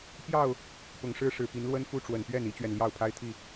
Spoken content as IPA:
p j ɑ˥˨ ʊ̯ | p ʊ˨˩ ŋ ʂ ɻ̩˥˨ ʂ ɻ̩˨˩ p i˨˦ n l w ə˦ n f u˦ ʈ͡ʂ w ə˨˩ n p ɥ ɛ˥˨ n i˦ t͡ɕ ɥ ɛ˨ n l j ɑ˥˨ ʊ̯ pʰ a˦ ɪ̯ t̪ʰ i˥˨

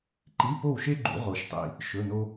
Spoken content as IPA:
ǃ i˧˥˧ p o˥˨ w ʃ e˥ ɡ͡ǃ ṵ˨˩˦ ʁ o˨ ʃ tˤ ḭ˨ | ʃ ɵ˧˥˧ n o˥

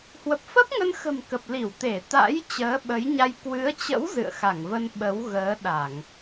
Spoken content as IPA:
h w ə˨˩ p̚ f ə˦˥ p̚ ŋ ə˧ n x ə̤˨˩ m k ə˨˩ p̚ l i˧˩ w t̪ e˧˩ t̪ a̰˧˥ j t͡ɕ əː˨˦ ɓ ə˨˦ j ɲ a˧ j k w ɨ˨˦ ə̯ t͡ɕ ə̰˧˥ w z ɨ̰˧˨ ə̯ x a˧˩ ŋ v ə˧ n ɓ ə˨˦ w ɣ əː˨˦ ɗ a˧˩˨ ŋ

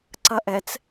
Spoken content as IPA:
ǀ ɐ ʔ ɛ t͡s

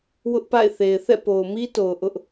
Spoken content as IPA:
w ʊ˦ ʔ p a̰˦˨ ɪ̯ θ e˨ ɪ̯ θ ɛ̰˦˨ p o˨ ʊ̯ m i˦ t o˨ ʊ̯ ʔ ʊ˦ ʔ

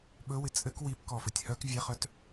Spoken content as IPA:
ɓ ɵ w ɪ t͡sʼ ɘ k w i p k ɔ f ɘ tʲ h œ k vʲ ɛ χ œ t

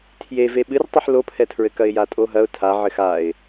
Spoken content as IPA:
tʰ j e v e ɓ ɨ r tˤ ɨ ħ l o pʰ ɛ tʰ ɹ ɘ k ɐ ɪ̯ j a tʼ o ɦ ɐ ʊ̯ tʰ a ʕ ɘ x a ɪ̯

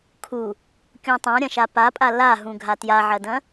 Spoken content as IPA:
kʰ u | kʲ ũ tˤ ã ɾʲ ɐ̃ ʃ a p a pʼ a l a ɦ ũ ɡʱ a t j a ʕ ɐ d ɐ̃

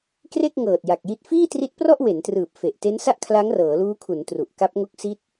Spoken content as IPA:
k r e˥˩ k̚ ŋ ɤː˨˩ t̚ j a˨˩ k̚ j i˦˥ t̚ f iː˥˩ t r i˦˥ t̚ p r ɔ˥˩ ʔ w e˩˦ n t r ɯː˨˩ p̚ f e˨˩ ʔ t e˦˥ n s a˥˩ ʔ kʰ l a˦˥ ŋ r ɤː˩˦ l uː˦˥ kʰ u˩˦ n t r u˨˩ ʔ k a˦˥ p̚ ŋ o˦˥ k̚ s i˦˥ t̚

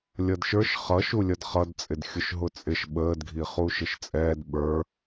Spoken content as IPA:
lʲ ʌ d ʃ ə˞ ʃ χ ʌ ʃ u lʲ ʌ d χ ʌ d t͡sʼ ɪ d xʲ ʊ ʃ ɦ ʊ t͡sʼ ɪ ʃ ɓ əː d ɡʱ i χ u ʃ ɪ ʃ t͡sʼ ɛː d ɓ ə˞

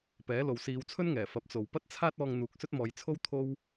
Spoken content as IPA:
p ɛː˨˥ l o˨ w s iː˨˧ w t͡sʰ ɵ˥ n ŋ ɛː˨˩ f ɐ˨˥ p̚ t͡s o˨ w p ɐ˥ t̚ t͡sʰ aː˥ t̚ ɔː˧ ŋ n̪ uː˨ k̚ s ɵ˥ t̚ m ɔː˨˧ j t͡sʰ o˥ w t̪ʰ o˥ w

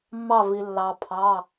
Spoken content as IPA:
mː ɑ˥˧ v i˧ lː ɑ˧ pʰ ɑ˧˥˧

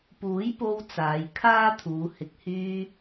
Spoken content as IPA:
p uː˨˥ j p o˧ w t͡s aː˨˧ j kʰ aː˥ t̪ʰ uː˨˧ h ɪ˨ k̚ h yː˧

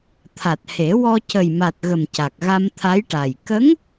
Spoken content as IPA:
t̪ʰ a˨˩ t̚ h e˨˩˦ w ɔ˧ c ə˨˩ j m a˨˩ t̚ ɣ ə˨˩ m c a˨˩ k̚ ɣ a˧ m t̪ʰ a˧˥ j ʈ a˨˩ j k ə˧˥ ŋ

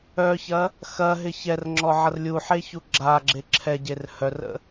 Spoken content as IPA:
œ ç ɐ | x ɐ ɦ ɪ ç ɛ r ŋ͡ǁ ɔ ʕ ɐ r lʲ u ħ e ç u ɡ͡ǁ a ɡ͡ǁ e ǁʰ ɛ ɟ e r h œ r ə̰

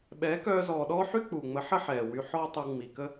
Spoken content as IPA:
ɓ ɛː˨˦ k œː˧ z ɔː˨ ɗ ɔː˦ ħ y˦ k͡p u˨ ŋ͡m ə˨˦ ħ ə˦ ħ ɛː˨ w y˧ ħ ɔː˦ tˤ ə˧ w ŋ͡m i˨ k ə˦

